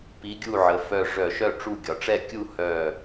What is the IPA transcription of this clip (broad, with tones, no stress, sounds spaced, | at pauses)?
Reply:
p i˨˥ ɡʲ u˥˩ ʕ ə˩˧ f œ˧˩ ʐ œ˧˩˧ ʃ œ˥˩ ʈ͡ʂ u˥˩ ɡʲ ɒ˩˧ ʈ͡ʂ ɛ˥˩ kʲ u˥˧ h œ˧˩